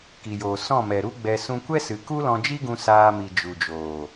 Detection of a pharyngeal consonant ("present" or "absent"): absent